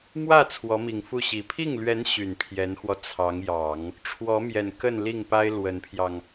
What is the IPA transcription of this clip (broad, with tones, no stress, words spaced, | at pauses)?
mwä˥˩ t͡sʰwɔ˧˥mi˨˩ŋfu˥˩ɕi˨˩ pʰi˥˩ŋlɥɛ˧˥n ɕy˨˩npʰjɛ˧˥nxwɔ˧ t͡sʰɑ˧˥ŋjɑ˨˩˦ŋ | ʈ͡ʂʰwɔ˧˥mjɛ˨˩n kə˥˧n li˥˩ŋpa˥ɪ̯ lwə˧˥npʰjɑ˧ŋ